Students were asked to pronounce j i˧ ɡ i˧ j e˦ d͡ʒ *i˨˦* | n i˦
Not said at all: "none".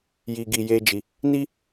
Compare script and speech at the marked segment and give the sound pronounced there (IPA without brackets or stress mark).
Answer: i˧